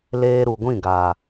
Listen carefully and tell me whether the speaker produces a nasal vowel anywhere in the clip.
yes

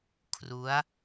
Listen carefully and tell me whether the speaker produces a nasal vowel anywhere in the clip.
no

